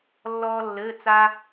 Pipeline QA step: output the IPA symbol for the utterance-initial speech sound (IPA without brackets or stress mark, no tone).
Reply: lː